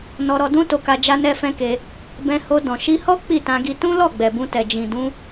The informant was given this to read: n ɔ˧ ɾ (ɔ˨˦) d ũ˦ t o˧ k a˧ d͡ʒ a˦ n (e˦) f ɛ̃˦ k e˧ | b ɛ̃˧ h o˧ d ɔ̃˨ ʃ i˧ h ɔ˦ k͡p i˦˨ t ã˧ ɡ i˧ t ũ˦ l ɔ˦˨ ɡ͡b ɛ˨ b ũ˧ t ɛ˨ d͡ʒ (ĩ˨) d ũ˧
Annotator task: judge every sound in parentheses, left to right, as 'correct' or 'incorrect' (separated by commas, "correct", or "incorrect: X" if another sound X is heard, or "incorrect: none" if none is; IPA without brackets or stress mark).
incorrect: ɔ˧, incorrect: ɛ˦, correct